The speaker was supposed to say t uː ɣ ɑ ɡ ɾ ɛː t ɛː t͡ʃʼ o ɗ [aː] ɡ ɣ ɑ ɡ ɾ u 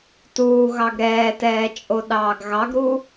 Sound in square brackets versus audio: incorrect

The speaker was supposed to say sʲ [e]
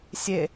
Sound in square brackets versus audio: correct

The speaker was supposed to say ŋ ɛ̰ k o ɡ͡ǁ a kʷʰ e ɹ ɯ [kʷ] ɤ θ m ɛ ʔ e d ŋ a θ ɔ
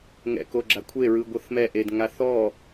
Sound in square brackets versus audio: incorrect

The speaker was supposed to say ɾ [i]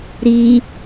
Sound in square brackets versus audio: correct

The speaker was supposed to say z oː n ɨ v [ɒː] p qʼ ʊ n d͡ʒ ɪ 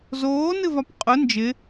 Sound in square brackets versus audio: incorrect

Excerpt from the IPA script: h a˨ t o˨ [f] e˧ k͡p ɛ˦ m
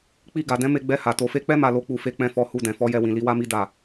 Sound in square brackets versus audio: correct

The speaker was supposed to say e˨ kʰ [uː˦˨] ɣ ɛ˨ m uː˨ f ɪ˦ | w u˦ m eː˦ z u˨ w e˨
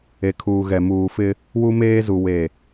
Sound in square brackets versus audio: incorrect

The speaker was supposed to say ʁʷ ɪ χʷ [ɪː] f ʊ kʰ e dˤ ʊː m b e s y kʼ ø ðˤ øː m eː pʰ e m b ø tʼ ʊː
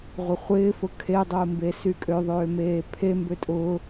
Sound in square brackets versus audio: correct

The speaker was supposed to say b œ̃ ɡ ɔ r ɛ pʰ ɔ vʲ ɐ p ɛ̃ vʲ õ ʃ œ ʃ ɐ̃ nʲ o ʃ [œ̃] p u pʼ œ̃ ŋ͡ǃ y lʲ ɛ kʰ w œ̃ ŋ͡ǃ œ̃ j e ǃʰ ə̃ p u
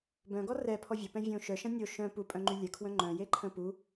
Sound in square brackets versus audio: correct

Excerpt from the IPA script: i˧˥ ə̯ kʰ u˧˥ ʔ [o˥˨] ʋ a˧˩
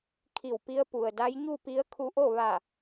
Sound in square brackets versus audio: correct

